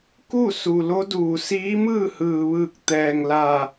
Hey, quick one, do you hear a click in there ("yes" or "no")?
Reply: no